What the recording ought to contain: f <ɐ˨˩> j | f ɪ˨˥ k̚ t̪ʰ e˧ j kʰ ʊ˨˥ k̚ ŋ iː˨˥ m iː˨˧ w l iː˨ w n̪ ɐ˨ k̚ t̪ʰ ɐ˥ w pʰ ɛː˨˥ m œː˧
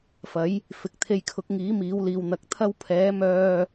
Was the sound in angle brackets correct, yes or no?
no